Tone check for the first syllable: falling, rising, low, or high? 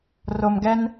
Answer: low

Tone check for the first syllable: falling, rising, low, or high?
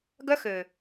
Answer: high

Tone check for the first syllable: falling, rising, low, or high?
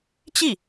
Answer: falling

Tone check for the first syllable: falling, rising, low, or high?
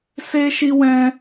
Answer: high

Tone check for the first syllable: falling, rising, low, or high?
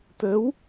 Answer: rising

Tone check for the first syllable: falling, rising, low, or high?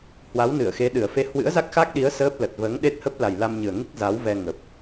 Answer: rising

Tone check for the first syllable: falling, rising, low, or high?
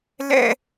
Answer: falling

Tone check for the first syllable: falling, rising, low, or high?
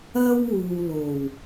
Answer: high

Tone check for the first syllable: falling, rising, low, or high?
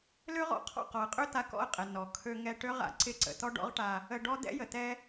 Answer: high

